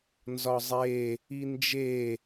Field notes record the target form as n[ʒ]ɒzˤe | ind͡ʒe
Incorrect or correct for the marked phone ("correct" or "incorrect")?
incorrect